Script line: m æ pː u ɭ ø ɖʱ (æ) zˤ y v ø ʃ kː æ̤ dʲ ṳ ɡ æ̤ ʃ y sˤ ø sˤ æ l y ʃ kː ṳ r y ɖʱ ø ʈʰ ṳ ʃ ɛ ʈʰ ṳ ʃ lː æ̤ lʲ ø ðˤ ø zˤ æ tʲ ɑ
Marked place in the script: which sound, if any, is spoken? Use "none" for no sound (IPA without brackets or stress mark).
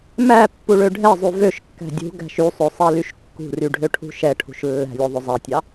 ɛ